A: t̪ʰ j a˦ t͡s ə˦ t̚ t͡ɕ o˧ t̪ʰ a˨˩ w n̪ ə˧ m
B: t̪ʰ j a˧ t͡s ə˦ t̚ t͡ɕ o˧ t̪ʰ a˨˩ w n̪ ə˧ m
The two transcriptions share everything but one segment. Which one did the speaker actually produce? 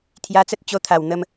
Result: B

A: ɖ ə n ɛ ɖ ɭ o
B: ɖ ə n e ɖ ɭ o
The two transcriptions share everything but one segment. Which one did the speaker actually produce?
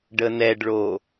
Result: A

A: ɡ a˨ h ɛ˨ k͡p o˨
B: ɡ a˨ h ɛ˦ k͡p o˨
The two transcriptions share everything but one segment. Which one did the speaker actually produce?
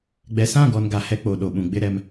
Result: B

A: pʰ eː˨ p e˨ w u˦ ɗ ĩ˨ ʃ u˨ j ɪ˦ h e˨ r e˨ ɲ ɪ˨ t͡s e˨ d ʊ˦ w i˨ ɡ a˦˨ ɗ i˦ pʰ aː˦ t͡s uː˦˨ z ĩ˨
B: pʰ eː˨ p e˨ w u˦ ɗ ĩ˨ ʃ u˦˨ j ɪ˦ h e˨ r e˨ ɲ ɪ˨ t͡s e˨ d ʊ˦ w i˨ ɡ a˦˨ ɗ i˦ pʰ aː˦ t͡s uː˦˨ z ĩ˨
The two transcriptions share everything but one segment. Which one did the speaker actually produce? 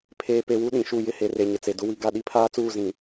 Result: B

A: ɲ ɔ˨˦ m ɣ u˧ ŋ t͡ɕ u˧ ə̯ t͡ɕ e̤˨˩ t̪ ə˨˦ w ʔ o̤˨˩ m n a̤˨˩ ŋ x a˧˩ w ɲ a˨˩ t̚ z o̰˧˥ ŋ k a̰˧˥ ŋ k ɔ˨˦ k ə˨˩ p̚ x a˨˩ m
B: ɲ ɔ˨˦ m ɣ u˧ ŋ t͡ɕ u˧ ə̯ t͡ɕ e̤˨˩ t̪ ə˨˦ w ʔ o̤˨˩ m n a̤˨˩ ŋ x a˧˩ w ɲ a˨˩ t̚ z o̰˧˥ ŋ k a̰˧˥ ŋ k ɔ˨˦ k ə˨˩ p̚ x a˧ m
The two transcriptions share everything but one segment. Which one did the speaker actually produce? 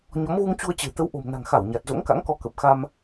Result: B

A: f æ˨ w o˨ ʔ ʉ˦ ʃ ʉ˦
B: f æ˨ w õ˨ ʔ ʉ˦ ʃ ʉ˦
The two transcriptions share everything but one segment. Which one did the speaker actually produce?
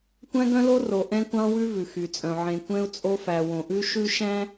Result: B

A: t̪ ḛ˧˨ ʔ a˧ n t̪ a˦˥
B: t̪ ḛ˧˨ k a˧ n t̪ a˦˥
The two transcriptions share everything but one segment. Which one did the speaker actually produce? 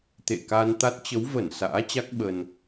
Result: B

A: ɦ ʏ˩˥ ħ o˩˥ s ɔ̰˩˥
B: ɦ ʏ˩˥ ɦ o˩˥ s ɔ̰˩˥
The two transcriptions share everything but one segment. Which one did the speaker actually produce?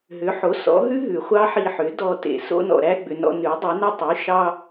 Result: A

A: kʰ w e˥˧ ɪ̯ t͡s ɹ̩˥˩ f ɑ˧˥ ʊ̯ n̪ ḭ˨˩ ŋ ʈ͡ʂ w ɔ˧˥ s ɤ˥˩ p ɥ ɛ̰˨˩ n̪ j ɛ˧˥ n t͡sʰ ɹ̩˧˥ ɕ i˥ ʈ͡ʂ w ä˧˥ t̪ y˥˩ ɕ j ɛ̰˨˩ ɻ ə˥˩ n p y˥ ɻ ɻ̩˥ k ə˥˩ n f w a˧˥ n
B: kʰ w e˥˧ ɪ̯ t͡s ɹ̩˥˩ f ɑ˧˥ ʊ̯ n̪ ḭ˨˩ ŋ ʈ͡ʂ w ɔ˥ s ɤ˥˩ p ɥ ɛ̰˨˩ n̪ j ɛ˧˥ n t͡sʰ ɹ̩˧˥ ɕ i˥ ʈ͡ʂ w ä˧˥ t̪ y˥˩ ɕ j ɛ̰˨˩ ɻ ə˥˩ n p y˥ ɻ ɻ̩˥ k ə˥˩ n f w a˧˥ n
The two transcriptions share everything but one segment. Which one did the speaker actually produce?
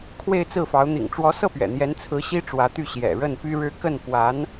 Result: A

